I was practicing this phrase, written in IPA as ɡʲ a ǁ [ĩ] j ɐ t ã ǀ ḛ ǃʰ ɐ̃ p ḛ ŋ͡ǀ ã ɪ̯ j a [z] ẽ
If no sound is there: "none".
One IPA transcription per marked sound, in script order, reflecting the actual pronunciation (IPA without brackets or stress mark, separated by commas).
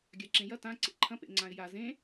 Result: ẽ, z